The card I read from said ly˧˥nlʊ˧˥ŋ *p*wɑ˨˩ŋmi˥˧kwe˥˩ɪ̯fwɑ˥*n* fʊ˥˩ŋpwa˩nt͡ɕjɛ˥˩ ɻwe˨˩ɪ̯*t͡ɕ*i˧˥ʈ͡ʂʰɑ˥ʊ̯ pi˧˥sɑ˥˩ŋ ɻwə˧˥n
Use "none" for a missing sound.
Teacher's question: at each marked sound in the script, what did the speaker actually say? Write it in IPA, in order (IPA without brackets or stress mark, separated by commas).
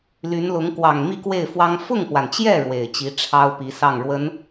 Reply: k, ŋ, t͡ɕ